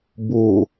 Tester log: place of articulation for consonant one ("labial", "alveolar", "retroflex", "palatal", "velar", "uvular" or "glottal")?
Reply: labial